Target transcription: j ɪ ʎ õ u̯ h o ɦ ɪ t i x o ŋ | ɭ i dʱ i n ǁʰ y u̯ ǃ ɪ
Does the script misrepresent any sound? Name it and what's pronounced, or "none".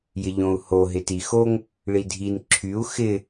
ǃ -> x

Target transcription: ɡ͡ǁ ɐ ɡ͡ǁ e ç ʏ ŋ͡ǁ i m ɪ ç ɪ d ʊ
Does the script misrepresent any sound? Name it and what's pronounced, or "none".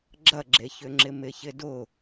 i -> ɪ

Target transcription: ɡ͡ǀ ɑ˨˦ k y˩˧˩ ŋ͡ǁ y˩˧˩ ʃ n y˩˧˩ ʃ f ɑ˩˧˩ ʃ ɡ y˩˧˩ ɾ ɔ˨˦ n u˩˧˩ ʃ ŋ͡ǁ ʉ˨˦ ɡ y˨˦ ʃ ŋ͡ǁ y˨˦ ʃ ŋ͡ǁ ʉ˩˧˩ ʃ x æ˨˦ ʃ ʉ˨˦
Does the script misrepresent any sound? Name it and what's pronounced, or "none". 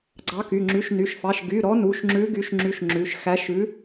none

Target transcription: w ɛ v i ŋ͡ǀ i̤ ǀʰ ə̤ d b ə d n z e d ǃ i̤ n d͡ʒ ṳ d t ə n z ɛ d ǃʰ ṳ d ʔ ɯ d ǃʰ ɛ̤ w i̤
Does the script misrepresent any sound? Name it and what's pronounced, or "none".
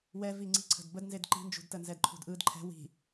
none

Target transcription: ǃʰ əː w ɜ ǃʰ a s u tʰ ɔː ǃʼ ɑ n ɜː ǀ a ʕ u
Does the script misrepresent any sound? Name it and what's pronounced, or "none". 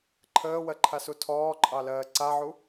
n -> l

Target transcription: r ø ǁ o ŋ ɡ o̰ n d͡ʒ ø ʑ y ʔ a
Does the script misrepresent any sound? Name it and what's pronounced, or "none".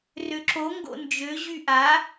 none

